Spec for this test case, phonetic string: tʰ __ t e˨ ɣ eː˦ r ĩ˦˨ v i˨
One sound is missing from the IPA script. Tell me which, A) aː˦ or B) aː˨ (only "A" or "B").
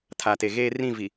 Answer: B